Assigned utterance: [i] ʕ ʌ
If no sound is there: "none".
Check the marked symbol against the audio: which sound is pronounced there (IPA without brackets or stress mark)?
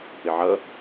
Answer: ɪ